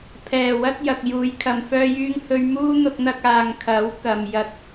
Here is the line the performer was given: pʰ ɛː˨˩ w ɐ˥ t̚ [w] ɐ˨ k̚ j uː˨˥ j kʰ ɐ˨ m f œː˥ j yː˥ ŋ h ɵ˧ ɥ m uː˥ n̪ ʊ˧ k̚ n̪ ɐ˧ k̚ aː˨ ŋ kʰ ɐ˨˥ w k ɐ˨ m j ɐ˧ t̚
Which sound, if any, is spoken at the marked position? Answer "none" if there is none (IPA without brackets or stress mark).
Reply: j